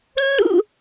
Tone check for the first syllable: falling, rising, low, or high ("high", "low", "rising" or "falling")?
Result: falling